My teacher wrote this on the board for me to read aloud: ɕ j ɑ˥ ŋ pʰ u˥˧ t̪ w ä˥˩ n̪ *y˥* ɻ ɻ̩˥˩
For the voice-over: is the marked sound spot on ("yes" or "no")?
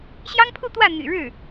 no